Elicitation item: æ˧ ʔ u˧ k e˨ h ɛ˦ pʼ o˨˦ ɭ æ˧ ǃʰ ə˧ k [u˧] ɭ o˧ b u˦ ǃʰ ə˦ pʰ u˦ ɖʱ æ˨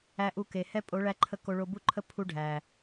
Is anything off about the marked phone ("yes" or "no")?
yes